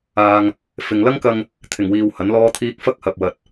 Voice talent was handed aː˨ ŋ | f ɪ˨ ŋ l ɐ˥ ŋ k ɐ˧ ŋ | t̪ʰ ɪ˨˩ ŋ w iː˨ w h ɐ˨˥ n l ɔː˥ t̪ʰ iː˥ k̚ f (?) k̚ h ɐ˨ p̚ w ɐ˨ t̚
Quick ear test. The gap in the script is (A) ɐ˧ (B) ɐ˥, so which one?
B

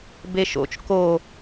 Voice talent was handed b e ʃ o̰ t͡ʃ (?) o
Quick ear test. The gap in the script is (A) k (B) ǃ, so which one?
A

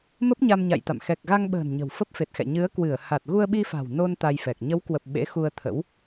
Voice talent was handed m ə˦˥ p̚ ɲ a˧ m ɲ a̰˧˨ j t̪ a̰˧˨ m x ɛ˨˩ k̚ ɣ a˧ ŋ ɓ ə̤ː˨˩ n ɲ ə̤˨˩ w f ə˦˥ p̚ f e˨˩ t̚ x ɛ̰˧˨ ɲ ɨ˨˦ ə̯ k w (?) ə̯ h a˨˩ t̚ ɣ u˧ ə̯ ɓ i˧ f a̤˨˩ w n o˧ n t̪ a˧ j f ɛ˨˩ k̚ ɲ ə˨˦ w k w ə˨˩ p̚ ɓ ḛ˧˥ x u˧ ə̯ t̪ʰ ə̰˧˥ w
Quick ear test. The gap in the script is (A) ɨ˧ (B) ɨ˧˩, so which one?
B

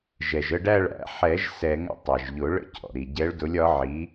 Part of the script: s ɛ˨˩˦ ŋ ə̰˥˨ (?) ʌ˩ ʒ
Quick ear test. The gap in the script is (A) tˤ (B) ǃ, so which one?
A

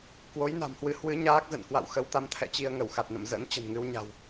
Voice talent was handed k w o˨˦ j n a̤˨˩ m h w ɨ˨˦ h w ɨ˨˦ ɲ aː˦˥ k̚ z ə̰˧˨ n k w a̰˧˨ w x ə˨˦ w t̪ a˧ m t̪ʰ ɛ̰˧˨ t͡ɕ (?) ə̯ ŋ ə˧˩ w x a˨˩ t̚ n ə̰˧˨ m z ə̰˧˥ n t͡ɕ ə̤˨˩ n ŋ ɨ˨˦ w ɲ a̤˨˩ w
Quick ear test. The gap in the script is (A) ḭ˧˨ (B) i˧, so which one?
B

